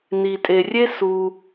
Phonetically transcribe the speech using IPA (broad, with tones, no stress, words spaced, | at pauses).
ni˩tʼe˩rʲe˥ su˩